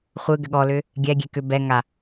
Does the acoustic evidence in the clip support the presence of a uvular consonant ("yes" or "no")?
yes